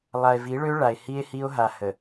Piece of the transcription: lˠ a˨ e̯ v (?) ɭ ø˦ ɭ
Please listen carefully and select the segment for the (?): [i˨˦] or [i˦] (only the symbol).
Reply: i˨˦